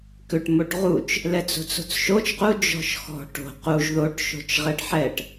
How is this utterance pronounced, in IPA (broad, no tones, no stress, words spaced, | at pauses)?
kʏʈ moʈʁut͡ʃ | lɛt͡so̤t͡so̤t͡sʃot͡ʃ qu d͡ʒɔ̤ʃxɔ̤ ʈo̤ quʒ ðoʈ ʃo̤t͡ʃʁɛɖħɛʈ